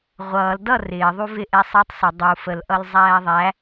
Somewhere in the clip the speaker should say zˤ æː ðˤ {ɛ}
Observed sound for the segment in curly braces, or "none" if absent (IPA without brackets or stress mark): æ